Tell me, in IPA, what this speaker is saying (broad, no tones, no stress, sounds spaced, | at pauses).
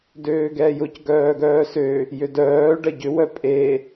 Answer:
d øː ɡ ɛː j ʊ c ɡ œː ɡ œː s ø | j ʏ d œː ɖ ɐ ɟ ʏ w œ pʼ e